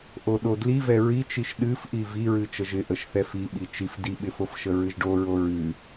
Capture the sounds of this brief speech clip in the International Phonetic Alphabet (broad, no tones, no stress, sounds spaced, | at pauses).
ʔ o ɗ o d l i v ɛ ɹ i t͡ʃ i ʃ ɗ ɨ f ʔ i v i ɹ ɨ t͡ʃ ə ʒ ɪ ʔ ə ʃ θ ɛ f i ɓ i t͡ʃ i f d i ɓ ɪ f o f ʃ ə ɹ ɨ ʒ ɖ o ɹ o ɹ ɨ